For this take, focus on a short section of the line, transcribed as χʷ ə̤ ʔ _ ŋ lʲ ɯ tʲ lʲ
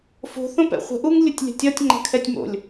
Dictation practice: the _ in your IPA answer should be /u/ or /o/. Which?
u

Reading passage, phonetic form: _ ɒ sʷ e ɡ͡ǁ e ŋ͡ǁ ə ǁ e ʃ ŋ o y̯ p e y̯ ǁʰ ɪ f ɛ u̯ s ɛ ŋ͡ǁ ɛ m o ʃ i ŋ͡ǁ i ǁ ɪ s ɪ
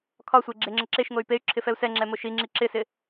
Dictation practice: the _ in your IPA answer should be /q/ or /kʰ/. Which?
kʰ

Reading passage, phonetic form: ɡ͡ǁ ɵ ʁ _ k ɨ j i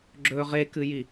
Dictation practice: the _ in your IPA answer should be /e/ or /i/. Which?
e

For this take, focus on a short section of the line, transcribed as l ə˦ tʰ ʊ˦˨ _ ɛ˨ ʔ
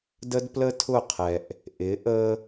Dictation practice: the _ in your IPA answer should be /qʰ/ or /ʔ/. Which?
qʰ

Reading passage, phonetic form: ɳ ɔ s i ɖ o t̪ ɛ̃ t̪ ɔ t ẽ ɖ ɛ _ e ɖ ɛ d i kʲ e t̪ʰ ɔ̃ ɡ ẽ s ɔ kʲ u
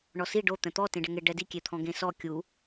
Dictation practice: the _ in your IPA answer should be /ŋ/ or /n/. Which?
ŋ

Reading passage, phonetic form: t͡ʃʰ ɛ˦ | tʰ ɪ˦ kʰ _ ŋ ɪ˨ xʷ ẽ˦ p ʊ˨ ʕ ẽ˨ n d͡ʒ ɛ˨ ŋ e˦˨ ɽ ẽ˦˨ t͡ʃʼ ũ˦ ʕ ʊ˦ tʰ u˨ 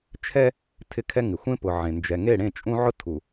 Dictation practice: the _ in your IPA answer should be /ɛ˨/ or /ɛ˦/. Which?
ɛ˦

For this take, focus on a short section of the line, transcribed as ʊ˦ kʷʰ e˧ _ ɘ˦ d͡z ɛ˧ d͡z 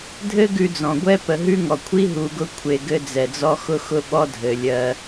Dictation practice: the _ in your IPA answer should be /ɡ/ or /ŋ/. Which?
ɡ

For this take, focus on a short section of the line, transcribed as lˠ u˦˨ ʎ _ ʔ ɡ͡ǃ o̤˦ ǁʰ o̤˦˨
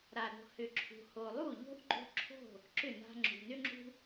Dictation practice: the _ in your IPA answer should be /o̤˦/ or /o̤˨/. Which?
o̤˦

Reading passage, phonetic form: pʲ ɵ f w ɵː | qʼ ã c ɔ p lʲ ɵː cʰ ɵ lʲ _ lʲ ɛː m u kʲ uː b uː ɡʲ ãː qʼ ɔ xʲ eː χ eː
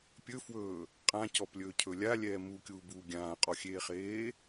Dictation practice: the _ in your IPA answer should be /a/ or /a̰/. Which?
a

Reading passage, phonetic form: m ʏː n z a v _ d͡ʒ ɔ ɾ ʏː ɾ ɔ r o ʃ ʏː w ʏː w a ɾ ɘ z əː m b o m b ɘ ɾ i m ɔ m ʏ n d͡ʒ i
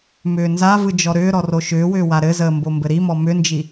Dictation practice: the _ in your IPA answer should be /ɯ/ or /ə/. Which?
ɯ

